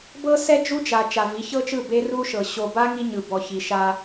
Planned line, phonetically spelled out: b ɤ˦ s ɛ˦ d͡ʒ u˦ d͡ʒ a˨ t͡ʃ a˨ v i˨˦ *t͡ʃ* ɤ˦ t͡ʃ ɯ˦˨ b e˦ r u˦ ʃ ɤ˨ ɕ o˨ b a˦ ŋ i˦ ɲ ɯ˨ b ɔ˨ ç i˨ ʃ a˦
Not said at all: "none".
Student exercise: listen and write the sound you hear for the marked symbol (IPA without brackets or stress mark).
ç